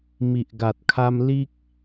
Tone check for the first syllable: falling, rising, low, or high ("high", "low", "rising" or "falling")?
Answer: low